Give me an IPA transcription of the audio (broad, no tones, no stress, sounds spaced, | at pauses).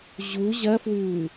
ʑ u ʑ ɐ f w ʉː